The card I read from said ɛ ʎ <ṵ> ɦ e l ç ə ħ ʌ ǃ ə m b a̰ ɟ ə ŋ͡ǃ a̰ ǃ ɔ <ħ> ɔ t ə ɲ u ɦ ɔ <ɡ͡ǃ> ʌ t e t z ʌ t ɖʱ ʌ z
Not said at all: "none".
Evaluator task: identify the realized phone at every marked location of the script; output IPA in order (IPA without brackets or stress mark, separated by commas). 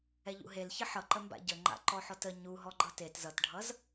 ṵ, ħ, ɡ͡ǃ